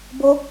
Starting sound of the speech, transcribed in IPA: b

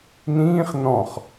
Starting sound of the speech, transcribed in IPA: n̪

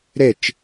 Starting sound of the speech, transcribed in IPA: ɾ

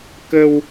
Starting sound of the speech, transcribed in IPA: k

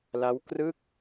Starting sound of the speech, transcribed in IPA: l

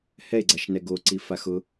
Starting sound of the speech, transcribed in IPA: h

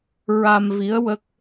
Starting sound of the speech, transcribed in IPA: ɹ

